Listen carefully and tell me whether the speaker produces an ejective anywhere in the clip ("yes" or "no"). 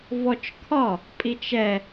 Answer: yes